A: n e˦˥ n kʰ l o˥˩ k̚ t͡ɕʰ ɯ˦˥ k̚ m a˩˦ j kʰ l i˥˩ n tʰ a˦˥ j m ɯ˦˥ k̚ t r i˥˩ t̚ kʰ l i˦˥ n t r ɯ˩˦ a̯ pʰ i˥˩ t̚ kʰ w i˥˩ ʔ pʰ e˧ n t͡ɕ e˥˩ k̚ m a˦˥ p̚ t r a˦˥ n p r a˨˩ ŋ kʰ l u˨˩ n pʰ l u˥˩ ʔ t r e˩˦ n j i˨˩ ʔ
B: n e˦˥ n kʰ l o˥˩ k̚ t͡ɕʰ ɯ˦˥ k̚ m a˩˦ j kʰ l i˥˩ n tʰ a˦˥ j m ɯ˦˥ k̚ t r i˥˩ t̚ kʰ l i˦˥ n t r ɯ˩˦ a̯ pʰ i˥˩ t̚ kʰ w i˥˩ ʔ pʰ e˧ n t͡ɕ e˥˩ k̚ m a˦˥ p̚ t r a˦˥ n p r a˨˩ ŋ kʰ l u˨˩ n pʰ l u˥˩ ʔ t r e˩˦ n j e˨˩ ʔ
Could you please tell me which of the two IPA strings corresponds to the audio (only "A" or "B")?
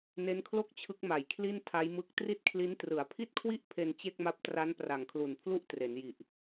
A